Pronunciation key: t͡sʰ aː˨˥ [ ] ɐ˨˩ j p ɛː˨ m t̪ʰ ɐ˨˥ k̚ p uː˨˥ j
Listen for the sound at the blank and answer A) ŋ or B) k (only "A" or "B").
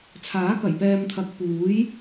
B